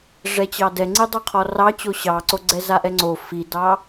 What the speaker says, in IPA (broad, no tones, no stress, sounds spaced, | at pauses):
ʐ ɛ t͡ɕ ɑ d ɛ ŋ͡ǀ i dˤ o qʰ ɔ r ɑ t͡ɕ o ɕ ɑ ǀ o ɡ͡ǀ ɛ z a ʔ ɛ ŋ͡ǀ o f i d ɑ